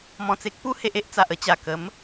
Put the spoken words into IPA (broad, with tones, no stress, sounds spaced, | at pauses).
m ɔ̃˨˩ t͡s e˦ k̚ p u˦ h e˦ ʔ e˦ ʔ t͡s a˨ ʔ ə˧ t͡ɕ a˨˩ k ə˨˦ m